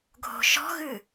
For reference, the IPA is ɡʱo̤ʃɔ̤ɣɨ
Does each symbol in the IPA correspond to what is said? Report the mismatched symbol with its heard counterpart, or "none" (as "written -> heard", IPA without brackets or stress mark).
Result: none